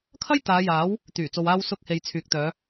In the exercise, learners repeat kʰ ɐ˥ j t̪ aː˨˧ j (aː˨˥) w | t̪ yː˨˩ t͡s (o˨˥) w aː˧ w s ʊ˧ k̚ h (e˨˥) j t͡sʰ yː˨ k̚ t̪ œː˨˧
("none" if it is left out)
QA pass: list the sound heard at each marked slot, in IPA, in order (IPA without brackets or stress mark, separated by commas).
aː˨˥, o˨, e˨